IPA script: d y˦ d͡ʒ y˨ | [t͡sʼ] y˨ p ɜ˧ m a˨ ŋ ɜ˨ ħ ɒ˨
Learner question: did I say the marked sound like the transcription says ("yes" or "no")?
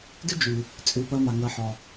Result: yes